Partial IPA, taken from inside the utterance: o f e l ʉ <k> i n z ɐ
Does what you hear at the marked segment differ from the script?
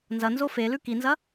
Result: no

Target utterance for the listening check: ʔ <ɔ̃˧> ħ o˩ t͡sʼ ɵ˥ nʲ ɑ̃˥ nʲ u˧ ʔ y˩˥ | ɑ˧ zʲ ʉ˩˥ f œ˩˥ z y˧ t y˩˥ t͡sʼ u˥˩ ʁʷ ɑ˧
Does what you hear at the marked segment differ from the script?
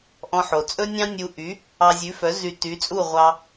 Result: no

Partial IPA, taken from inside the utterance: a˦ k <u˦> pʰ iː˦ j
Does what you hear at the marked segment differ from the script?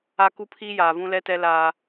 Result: no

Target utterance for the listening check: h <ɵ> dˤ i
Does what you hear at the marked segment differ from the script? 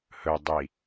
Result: no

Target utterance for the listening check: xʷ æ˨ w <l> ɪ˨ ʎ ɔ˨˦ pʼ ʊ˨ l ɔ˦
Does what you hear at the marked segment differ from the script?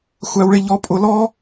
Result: yes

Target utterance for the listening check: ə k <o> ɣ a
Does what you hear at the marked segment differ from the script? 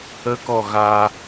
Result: yes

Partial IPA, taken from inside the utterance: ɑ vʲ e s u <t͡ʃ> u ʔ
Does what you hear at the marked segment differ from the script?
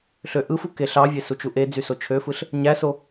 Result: no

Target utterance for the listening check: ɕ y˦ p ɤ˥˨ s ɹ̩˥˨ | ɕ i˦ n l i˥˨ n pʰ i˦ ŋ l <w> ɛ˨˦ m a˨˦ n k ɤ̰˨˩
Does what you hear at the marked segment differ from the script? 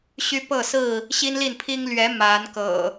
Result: yes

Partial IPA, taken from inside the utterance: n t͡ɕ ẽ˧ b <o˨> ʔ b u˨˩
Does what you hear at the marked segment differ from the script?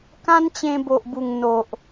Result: no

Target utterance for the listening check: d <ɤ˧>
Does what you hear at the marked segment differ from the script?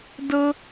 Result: no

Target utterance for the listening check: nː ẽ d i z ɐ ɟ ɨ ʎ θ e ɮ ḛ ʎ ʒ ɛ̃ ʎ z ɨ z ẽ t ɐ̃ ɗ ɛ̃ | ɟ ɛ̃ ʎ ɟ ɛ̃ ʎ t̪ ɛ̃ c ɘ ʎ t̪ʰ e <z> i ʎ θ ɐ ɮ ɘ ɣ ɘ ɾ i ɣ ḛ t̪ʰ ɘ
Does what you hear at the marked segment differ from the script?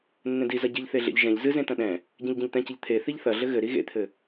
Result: yes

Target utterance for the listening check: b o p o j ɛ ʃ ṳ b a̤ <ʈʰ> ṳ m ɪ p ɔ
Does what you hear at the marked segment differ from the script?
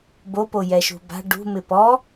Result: yes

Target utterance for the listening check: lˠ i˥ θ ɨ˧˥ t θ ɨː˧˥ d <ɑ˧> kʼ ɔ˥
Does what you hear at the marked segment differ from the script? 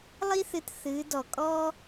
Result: yes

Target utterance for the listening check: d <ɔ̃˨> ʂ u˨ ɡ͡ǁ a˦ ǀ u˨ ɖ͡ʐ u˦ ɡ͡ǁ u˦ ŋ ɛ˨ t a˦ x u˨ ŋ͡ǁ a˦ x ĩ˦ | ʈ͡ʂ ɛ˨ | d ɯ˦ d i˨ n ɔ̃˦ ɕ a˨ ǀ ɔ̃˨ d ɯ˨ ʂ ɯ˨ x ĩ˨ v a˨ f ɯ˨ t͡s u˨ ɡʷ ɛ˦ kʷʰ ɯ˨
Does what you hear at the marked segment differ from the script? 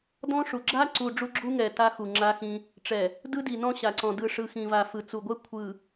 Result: yes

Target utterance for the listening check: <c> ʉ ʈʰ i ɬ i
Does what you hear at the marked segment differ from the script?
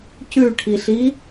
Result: no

